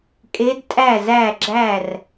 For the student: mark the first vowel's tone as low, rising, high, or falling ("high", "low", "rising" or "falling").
rising